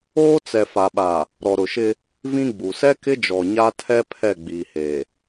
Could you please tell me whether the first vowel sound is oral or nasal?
oral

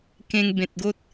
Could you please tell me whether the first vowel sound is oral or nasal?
nasal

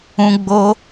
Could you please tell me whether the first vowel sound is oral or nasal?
nasal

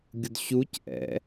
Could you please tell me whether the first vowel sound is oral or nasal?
oral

